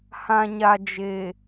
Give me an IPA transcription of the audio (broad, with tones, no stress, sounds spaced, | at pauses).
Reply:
h ã˨ ɲ a˨ d͡ʒ e˨